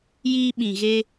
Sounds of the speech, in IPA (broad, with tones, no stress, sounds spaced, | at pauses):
j iː˧ ɓ ĩ˨ ɣ e˧